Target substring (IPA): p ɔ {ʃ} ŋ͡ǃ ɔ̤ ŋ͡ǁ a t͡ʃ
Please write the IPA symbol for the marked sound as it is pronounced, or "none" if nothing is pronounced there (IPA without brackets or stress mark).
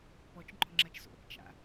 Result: t͡ʃ